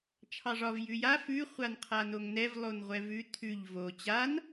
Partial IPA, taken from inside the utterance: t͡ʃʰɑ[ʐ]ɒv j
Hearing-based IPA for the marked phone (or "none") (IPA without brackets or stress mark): ʐ